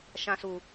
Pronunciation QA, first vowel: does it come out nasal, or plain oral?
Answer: nasal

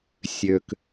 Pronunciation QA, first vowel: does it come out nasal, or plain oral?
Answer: oral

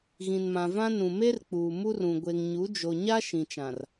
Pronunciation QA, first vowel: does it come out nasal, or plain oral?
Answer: nasal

